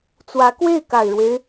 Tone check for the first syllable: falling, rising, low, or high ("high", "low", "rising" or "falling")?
rising